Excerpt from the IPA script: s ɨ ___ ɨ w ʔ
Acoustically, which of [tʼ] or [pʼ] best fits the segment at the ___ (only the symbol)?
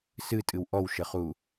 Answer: tʼ